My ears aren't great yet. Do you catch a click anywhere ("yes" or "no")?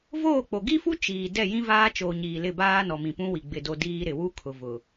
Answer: no